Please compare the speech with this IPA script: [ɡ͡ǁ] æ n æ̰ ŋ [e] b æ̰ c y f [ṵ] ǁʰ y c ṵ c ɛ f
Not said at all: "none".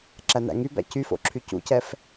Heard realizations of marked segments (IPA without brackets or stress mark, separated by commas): ǁ, y, o̰